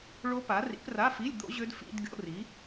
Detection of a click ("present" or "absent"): absent